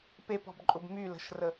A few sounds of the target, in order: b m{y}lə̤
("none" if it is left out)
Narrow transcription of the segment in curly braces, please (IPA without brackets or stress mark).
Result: y